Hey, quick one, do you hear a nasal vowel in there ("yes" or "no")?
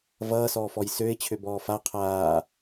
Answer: no